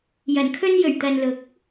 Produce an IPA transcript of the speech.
j ɐ˨˩ n kʰ ɵ˧ n j ɵ˨˩ ɥ t̪ ɐ˨ n l ʊ˨˥ k̚

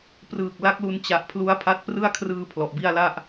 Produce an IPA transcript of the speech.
p r ɯː˨˩ k̚ l a˦˥ k̚ l u˧ n t͡ɕ a˨˩ ʔ pʰ l u˦˥ a̯ pʰ a˦˥ t̚ p r ɯ˥˩ a̯ kʰ r ɯː˧ pʰ l ɔ˨˩ ʔ b i˥˩ a̯ l a˥˩ ʔ

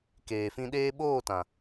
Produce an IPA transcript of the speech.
k eː˨ f ĩ˧ ɗ eː˦ ɓ oː˦˨ t ã˨

